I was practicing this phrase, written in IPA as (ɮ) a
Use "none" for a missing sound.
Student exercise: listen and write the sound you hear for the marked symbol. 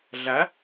ɮ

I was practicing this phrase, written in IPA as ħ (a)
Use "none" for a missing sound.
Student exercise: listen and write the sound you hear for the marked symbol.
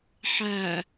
æ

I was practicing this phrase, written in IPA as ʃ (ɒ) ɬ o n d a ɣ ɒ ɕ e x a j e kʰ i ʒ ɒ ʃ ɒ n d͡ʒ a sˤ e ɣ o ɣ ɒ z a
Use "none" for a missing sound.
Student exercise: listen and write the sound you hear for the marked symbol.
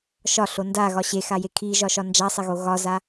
ɒ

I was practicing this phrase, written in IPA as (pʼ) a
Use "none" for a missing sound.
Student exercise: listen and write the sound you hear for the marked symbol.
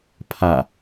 pʰ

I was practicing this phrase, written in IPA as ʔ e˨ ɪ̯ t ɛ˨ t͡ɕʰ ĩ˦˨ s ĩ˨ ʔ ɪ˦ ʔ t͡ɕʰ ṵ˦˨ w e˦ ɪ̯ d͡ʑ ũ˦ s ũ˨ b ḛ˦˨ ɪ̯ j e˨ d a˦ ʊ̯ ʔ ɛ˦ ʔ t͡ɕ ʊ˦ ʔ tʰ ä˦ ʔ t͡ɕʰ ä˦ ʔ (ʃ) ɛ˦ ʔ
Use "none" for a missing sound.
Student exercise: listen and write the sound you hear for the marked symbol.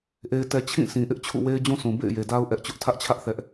θ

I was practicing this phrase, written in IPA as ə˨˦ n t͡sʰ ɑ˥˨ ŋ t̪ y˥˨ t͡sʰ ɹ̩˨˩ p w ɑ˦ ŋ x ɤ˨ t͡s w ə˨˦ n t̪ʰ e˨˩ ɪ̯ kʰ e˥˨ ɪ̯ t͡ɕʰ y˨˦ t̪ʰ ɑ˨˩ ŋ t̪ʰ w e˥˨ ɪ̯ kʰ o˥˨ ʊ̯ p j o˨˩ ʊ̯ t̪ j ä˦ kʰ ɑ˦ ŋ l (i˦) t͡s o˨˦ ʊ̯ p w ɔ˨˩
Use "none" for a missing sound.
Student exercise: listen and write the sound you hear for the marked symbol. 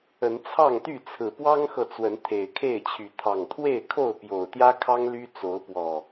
y˦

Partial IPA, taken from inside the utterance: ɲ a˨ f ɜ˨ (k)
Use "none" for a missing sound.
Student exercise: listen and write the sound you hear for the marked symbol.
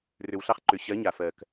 k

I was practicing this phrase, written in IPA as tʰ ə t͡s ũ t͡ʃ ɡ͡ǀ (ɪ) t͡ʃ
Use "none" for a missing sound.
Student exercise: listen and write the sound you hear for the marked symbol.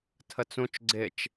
ɪ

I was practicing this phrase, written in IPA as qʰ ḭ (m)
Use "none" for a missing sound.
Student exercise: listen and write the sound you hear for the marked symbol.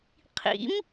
m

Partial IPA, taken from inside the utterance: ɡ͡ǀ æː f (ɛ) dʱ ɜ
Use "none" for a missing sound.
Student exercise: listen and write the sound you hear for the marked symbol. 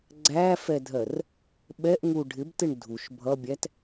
ɛ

